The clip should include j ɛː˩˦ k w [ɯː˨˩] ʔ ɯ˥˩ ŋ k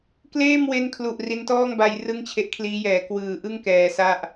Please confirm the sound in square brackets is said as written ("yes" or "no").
yes